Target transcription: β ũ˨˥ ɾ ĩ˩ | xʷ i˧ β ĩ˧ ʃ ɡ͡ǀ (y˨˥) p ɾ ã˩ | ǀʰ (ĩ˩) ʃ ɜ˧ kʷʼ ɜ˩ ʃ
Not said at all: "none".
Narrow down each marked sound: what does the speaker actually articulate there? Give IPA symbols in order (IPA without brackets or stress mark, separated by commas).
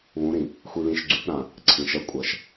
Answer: y˨˥, ĩ˩